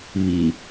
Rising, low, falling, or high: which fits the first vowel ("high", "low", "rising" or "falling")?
low